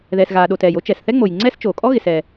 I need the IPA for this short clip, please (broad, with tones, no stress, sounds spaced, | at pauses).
ð ɛ˩ s ɣ aː˩ ɗ o˩ t ɛː˩ j o˥ t͡ʃ ɛ˩ s θ ɛ˥ ŋ͡m o˩ j ŋ͡ǀ ɛː˥ s t͡ʃ oː˩ kʼ ɔ˥ ɣ ɪ˩ s ɛ˩